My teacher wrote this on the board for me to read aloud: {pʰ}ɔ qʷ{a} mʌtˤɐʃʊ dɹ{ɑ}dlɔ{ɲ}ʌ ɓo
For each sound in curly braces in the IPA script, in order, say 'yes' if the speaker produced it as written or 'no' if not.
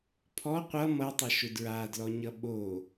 yes, no, no, yes

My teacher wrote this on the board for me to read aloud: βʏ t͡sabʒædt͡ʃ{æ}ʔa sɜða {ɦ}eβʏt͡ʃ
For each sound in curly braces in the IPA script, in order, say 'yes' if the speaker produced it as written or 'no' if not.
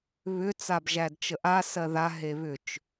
no, yes

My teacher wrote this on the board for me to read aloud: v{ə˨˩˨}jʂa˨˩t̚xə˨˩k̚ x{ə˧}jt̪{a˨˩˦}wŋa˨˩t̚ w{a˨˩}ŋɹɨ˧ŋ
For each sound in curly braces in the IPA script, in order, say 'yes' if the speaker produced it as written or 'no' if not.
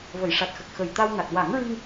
yes, no, no, no

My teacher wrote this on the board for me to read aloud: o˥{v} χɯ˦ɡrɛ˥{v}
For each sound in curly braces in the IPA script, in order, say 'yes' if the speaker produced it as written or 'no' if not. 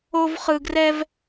yes, yes

